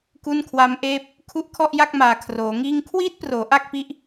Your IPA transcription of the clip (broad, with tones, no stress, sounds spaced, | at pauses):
k u˥˩ n kʰ w a˦˥ m ʔ eː˥˩ p̚ | kʰ u˦˥ ʔ kʰ ɔ˥˩ ʔ j a˥˩ k̚ m aː˨˩ kʰ r oː˩˦ ŋ iː˥˩ ŋ kʰ w iː˦˥ t̚ p r oː˩˦ ʔ a˥˩ k̚ p i˦˥ ʔ